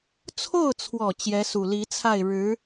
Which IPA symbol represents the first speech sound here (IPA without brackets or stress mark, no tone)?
t͡sʰ